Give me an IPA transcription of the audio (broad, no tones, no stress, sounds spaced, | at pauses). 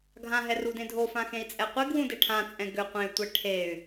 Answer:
ɡʱ ã ɦ ɛ r u d ẽ dʱ o f ã x ẽ i̯ t͡sʼ ɛ qʷ e ɡ w ũ d e ʈʰ ã t͡sʼ ɛ̃ ɡ ʏ qʷ ẽ y̯ tʷ ɛ ʈʰ e y̯